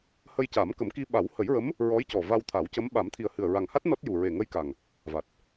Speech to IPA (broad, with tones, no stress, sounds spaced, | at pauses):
h ə˧ j c a˨˩˦ m k ə˨˩˦ m k i˧ ɓ a˨˩˦ w h ə˨˩˦ j ɹ ə˧˥ m | ɹ ɔ˧˥ j c ɔ˨˩ v a˧ w t̪ʰ a˨˩˦ w c ə˧˥ m ɓ a˨˩˦ m t̪ʰ i˨˩ ə̯ h ɨ˨˩ ə̯ ɹ a˨˩ ŋ h a˦˥ t̚ n ɔ˦˥ t̚ j u˨˩ ɹ e˨˩ ŋ ə˧ j k a˨˩ ŋ | v a˨˩ t̚